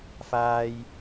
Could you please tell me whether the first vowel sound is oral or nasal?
oral